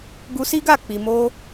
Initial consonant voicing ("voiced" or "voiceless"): voiced